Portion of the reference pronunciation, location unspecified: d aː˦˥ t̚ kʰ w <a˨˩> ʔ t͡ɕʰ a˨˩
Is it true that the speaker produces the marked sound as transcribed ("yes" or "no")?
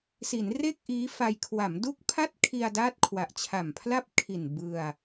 yes